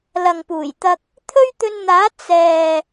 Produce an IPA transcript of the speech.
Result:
l ɐ˨ ŋ p uː˨˩ j t̪ ɐ˧ k̚ | t̪ʰ ɵ˥ ɥ t̪ ɵ˧ n n̪ aː˨˥ t͡s ɛː˨

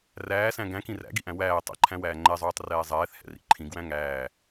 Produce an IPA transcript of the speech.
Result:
r æː s æ̃ ɡ æ̃ k ĩ r æ̰ ɡ i ʔ æ̃ w æː tˤ ɛ̰ ǃʰ æ̃ w æː ŋ͡ǃ ɛ zˤ uː tˤ r ɛː zˤ ɛː θ h ɛ̰ r ḭ ǃʰ ĩ ɡ w æ̃ ŋ æː

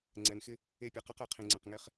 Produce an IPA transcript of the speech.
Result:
ŋ͡ǀ ɛ˨ n x ɪ˦ | e˦˨ pʲ ɛ˨ q a˦ q ɛ˨ qʰ ĩ˨ ŋ͡ǀ ɛ̃˨ q ŋ e˦ χ

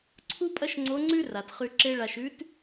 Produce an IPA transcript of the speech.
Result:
ǀʰ u˥ pʼ ɐ˥ ʃ ŋ͡ǀ o˧˥ ŋ͡ǀ ʉ˥ r a˩ t χ ʉ˧ ǁ e˥ ɭ a˧ ʃ ʉ˧˥ t

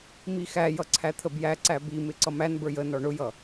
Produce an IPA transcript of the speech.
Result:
m i x æ j ʌ ǀʰ æ t̪ʰ ə b j æ ǀ æ b i m ɪ ǀ ʌ m æ n b ə˞ j ə n ɔ ɳ ʊ j ʌ

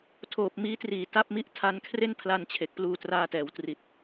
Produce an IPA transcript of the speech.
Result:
tʰ oː˨˩ p̚ m iː˦˥ t r iː˨˩ t a˦˥ p̚ m i˥˩ ʔ tʰ a˧ n kʰ r e˥˩ n pʰ l a˧ n t͡ɕʰ e˨˩ k̚ p l uː˧ t r aː˧ t ɛː˩˦ w t r i˨˩ t̚

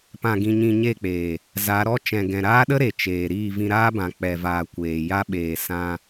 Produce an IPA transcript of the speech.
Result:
p ã˨ ɡ ĩ˨ ɲ ĩ˨ ɲ e˦˨ k͡p eː˨ | z a˨˦ ɾ ɔ˦ t͡ʃ ɛ̃˨ ɡ ɛ̃˨ ɾ aː˦ ɗ ə˦ ɾ e˨ t͡ʃ eː˨ ɾ iː˦˨ v ĩ˧ ɾ aː˦ b ã˨ k͡p ɛ˨ v aː˨ kʷ eː˨ j a˧ ɓ eː˨ s ã˧

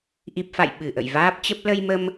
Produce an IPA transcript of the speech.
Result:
ʔ i˨˩ p̚ f a̰˧˨ j ɓ ɨ˧˩ ʔ ə̰˧˨ j v aː˦˥ p̚ t͡ɕ ə˦˥ p̚ l ə˧ j m ə˧ m

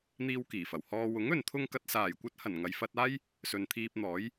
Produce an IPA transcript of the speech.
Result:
n̪ iː˧ w k iː˨˩ f ɐ˨˩ w h ɔː˧ w ʊ˨˥ ŋ ɵ˨ n t̪ʰ ʊ˧ ŋ k ɐ˨ t̚ s aː˨˩ j kʷ ɐ˧ t̚ h ɐ˨˩ n ŋ ɐ˨ j f ɐ˧ t̚ aː˥ j | s ɵ˨ n t̪ʰ iː˧ p̚ n̪ ɔː˨˥ j

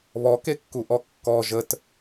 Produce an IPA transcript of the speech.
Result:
β ɔ k e kː u ʔ ɔ kː ɔ ʒ ə t

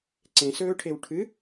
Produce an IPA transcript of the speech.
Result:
ǀ ẽ s ɵː ʈʰ e w ʈʰ ɨ

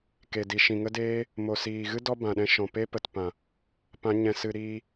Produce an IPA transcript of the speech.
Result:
k e˨ d i˨ ʃ ĩ˨ ŋ ə˦ d eː˦ | m o˨ s iː˨ ɣ ɨ˦ d ɔ˦ b ã˨ ɗ ɛ̃˧ ʃ ɔ̃˨ p e˦ p ə˨ t p ã˨ | p ã˨˦ ɲ ɛ̃˧ s ɨ˧ ɾ iː˧

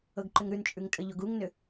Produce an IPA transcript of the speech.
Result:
ɤ ɡ ǃ ʏ ŋ ɾ ʉ n t͡ʃʼ ʉ ŋ tʼ ə ʎ o ɡ u ŋ n ʏ

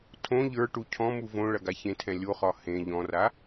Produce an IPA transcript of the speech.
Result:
tʰ õ ʎ ə˞ ʈ u cʰ ɔ̃ m u v õ ɭ ɐ ɡ a ç ẽ tʰ ɛ̃ lʲ o χ ɒ h ẽ ʎ ɔ̃ r a

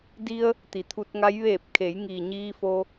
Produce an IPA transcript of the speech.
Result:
d i˧ ə̯ | t̪ i˩˧ t̪ʰ u˧ t̚ ŋ a˧˥ j ʋ eː˧˩ p̚ kʰ e˩˧ j ŋ iː˩ ɲ iː˧ f o˧

